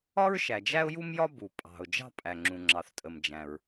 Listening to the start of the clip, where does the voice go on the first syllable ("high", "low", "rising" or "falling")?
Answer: high